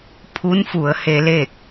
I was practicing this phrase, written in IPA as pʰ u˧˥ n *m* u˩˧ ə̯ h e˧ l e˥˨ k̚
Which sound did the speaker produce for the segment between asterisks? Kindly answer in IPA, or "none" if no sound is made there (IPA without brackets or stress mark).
f